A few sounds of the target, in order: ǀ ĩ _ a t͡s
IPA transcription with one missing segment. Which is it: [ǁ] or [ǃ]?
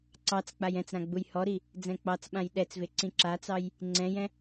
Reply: ǁ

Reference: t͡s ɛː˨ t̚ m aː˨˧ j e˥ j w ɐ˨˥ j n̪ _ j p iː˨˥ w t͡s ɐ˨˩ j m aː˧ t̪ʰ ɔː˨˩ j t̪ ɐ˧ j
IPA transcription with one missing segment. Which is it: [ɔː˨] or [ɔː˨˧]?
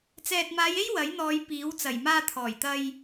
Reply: ɔː˨˧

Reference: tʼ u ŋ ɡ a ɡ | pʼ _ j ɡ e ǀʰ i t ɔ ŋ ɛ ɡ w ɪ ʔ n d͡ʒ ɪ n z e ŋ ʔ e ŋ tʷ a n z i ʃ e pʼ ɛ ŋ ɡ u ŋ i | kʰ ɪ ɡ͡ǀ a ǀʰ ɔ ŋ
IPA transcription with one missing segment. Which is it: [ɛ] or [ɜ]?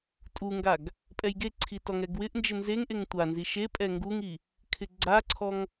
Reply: ɛ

